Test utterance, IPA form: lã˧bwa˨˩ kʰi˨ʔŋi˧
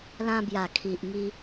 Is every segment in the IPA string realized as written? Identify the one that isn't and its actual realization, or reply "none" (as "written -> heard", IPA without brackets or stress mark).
w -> j